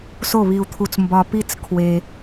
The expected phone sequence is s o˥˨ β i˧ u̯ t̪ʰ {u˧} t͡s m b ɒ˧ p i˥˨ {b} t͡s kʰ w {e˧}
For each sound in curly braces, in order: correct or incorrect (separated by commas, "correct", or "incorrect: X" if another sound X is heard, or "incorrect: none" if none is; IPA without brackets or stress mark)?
correct, incorrect: none, correct